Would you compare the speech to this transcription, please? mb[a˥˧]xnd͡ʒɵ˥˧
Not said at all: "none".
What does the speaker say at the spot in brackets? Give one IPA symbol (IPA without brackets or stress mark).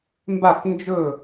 a˥˧